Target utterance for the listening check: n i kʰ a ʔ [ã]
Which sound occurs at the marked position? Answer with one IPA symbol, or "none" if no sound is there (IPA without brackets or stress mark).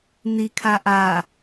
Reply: a